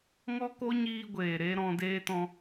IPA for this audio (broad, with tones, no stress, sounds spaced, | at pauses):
ŋ ɔ˦ k o˦ ɲ iː˧ ɡʷ eː˨ ɾ e˦ ɾ ɔ̃˧ d eː˦ t ɔ̃˧